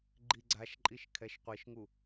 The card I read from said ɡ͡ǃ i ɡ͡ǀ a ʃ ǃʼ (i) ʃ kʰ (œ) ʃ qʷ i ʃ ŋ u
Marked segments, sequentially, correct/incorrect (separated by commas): correct, incorrect